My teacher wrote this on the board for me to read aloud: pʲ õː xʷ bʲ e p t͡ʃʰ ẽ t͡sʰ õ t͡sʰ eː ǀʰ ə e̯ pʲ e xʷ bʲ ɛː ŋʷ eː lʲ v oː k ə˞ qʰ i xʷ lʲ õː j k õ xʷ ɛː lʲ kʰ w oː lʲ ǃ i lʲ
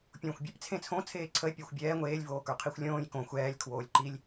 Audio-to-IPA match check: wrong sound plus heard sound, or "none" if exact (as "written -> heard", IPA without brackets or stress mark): t͡ʃʰ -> t͡sʰ